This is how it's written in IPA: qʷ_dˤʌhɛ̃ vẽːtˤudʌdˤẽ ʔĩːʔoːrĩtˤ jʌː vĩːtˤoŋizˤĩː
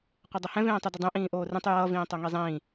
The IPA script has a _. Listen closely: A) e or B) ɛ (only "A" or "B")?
B